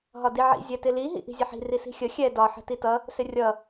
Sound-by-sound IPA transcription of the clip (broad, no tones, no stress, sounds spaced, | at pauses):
ɦ ɒ d i ʕ ḭ zʲ ɛ t ɪ l i ɦ ḭ ʔ i̤ zʲ ə ħ i̤ r i s i̤ xʲ ə xʲ ɛ d ɒ ħ ə̤ t i t ʌ | s ɪ rʲ ʌ